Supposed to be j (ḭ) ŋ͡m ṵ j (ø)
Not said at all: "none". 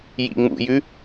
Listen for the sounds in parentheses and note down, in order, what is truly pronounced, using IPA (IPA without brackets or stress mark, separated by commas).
ḭ, ʉ